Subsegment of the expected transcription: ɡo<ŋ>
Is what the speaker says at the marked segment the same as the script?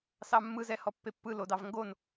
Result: no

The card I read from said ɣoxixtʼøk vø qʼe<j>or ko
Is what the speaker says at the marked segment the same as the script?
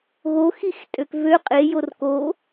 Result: yes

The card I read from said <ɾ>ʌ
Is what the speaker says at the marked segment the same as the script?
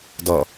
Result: no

